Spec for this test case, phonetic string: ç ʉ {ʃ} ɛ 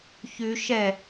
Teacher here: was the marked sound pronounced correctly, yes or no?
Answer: yes